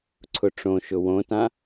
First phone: ǀʰ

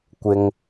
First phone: kʷ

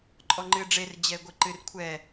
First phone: ǃʼ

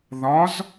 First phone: ð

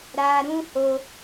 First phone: ɾ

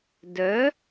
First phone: d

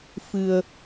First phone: f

